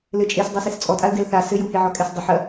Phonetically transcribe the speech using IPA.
l ɘ t͡ʃʼ e s dˤ u s e s t͡sʼ ɔ tʼ a l d ɛ l θ a s ɘ j u h e ʕ ɔ kʼ ɛ s dˤ ɘ ħ ɐ

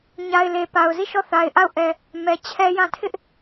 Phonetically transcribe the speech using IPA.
ɲ a˨ ɪ̯ l e˨ p a˨ ʊ̯ z i˦˨ ʃ ɔ˦˨ θ a˨ ɪ̯ ʔ a˦˨ ʊ̯ ʔ ɛ˨ | m ɛ˨ t͡ɕʰ ɛ˦ j ã˦˨ tʰ ɪ˦ ʔ

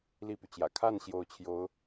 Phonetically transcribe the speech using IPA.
l i˥˩ p y˩ t͡ɕ j ä̰˨˩ kʰ a˥˩ n ɕ j o˧˥ ʊ̯ t͡ɕʰ j o˧˥ ʊ̯

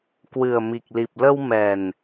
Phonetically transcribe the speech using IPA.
k w ɨ˨˩ ə̯ m i˨˩ k̚ l i˨˩ p̚ l ə˧ w m ɛ˨˩ n

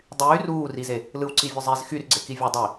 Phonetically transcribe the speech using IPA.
dˤ yː r uː r i z e | l ɯ w ǀ i vʲ ø zˤ i z x y r ɡ͡ǀ e k i vʲ o dˤ i

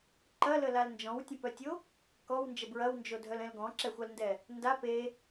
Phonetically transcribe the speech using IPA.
ǃ ɐ l ə l a l n d͡ʒ ɔ̃ w tʲ ə̃ p œ tʲ o | k ɔ w n d͡ʒ ə b ɹ ɐ w n d͡ʒ o dʱ œ l ɛ̃ l ɡ ɔ̃ ǁ ɛ xʷ a l n d ɛ | n d a p e

